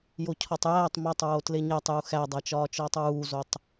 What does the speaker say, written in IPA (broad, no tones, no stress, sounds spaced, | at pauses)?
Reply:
j o cʰ ɒ tˤ j æː tˤ m ɒ tˤ ɹ o t l e ɲ æ tˤ j u x æ dˤ æ t͡ʃ ɒː t͡ʃ ɒː tˤ ɹ uː z o tˤ